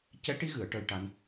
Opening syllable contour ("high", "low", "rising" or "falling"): rising